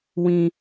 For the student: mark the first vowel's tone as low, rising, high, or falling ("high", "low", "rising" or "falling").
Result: high